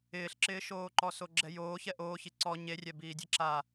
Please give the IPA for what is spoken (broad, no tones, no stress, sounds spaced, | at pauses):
ɪː ɬ ǁ ɪː ʃ oː ǃ ɔ s o ɡ͡ǁ ɛ j oː ç ɛ ʔ oː ç i ǀ ɔ ɲ e rʲ ɛ b iː dʲ e ǁ a